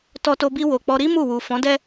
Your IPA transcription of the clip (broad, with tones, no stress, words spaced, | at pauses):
tɔ˧to˧bi˧ wo˨k͡pɔ˧ɾi˦ mu˦˨ wu˨fɔ̃˨˦dɛ˦